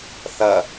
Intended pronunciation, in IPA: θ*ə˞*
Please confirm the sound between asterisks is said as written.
no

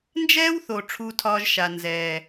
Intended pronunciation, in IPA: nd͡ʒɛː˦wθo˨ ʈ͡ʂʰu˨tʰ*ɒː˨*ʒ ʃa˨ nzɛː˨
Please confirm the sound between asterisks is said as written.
yes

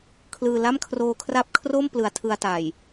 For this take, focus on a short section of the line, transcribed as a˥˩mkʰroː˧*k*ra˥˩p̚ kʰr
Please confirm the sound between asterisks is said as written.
no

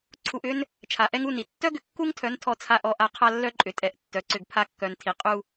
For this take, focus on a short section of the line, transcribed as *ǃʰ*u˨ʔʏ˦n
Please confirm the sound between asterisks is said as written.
no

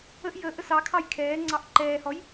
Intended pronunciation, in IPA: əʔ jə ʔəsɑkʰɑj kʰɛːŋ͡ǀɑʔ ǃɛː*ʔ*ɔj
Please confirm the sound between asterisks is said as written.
no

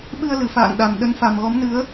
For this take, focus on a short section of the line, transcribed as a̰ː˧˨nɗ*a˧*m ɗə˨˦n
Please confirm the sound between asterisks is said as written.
no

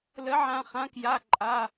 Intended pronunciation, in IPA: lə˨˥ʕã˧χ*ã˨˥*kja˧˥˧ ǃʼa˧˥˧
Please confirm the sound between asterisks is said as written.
yes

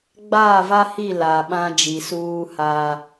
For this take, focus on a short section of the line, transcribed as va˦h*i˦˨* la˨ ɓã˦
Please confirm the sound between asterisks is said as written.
yes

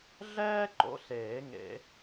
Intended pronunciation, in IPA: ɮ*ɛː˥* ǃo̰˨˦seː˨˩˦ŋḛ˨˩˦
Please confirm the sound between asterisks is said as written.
yes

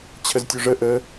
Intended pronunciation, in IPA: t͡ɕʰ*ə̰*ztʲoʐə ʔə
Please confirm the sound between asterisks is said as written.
no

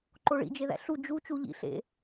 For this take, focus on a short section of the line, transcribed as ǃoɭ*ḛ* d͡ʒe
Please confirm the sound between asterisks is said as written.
no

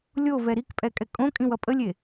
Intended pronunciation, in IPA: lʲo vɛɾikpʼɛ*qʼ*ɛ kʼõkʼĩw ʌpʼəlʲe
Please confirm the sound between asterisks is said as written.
no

